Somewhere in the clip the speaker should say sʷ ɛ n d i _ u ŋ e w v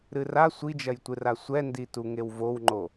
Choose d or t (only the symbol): t